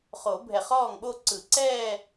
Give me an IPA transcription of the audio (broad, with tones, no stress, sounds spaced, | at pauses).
χ o˨˩˦ bʱ ɛ˧˩ χ ɔː˥˩ ŋ ɓ o˥˧ ǀ ɯ˨˩˦ ǀ ɛː˥˧